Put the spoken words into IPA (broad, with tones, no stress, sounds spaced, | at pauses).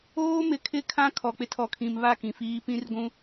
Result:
oː˦ m ɪ˨ kʰ ɪ˦ kʰ ã˦ kʰ ɔ˨ k͡p ɪ˦ tʰ ɔ˨ kʰ ĩ˨ m β a˦˨ k ĩ˨ f iː˦ p ĩ˦ r ɡʷ ũ˦